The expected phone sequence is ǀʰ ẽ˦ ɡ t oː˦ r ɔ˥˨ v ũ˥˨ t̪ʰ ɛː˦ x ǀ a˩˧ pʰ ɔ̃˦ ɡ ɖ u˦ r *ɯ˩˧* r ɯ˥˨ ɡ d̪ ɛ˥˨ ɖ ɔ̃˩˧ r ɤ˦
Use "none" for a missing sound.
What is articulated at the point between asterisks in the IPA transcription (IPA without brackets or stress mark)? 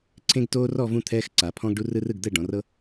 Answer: ɯ˦